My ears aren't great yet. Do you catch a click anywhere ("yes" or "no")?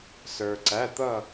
yes